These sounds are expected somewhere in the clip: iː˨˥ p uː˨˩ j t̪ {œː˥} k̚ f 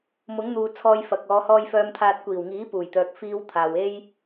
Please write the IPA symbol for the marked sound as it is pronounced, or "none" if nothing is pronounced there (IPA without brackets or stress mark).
œː˨